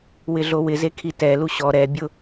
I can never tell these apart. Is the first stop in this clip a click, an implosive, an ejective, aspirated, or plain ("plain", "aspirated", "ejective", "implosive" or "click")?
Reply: aspirated